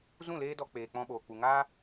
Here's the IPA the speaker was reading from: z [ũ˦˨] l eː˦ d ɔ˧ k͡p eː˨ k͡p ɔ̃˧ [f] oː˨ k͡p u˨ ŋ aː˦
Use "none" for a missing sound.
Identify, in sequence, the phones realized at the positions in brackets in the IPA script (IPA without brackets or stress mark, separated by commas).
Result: ũ˦˨, ɓ